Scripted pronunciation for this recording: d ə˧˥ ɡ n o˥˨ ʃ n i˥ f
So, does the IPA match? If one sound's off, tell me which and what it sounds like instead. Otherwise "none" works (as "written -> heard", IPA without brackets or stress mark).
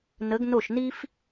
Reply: d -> n